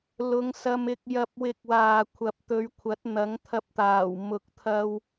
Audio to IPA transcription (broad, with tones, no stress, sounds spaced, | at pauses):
l ʊ˨˧ ŋ s ɐ˧ m ɪ˧ k̚ j ɐ˨ p̚ w ɪ˨˥ k̚ w aː˨ kʷʰ ɐ˨ p̚ t̪ ɵ˨˧ ɥ kʷʰ ɐ˨˥ t̚ n̪ ɐ˨˥ ŋ t̪ʰ ɐ˧ p̚ t̪ aː˨˩ w m ʊ˨ k̚ t̪ʰ ɐ˧ w